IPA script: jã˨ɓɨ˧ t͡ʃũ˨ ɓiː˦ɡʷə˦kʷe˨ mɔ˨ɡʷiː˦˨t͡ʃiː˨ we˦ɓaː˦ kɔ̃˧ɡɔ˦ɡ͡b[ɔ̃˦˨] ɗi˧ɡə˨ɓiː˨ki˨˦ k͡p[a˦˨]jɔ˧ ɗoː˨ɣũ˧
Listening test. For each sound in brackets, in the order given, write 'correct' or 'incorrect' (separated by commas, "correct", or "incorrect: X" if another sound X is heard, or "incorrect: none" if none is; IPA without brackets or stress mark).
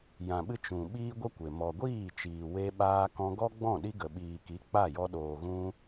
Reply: correct, correct